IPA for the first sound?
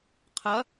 qʰ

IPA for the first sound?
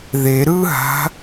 ð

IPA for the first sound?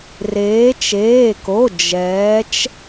r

